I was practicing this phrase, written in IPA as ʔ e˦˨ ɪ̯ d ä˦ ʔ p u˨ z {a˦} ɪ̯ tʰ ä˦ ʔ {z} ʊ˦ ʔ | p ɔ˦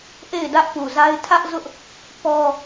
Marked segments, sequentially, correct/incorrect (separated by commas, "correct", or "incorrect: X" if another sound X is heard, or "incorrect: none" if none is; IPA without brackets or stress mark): correct, correct